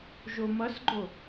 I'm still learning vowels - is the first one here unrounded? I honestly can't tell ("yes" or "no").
no